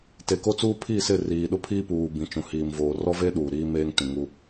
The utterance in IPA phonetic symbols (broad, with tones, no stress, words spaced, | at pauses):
te˨ko˦t͡suː˦ pʰi˦˨sɪ˦˨ riː˨ɗʊ˦pʰiː˦puː˨ bĩ˨t͡ʃũ˨hiː˨mvoː˨ rɔ˦ve˦ ɗuː˨ɾiː˦meː˦ŋ tĩ˨ŋu˦